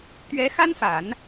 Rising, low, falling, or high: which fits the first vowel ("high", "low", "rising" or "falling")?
rising